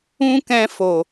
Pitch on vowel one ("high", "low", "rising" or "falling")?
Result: high